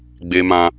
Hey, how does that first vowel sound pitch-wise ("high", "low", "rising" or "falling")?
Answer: low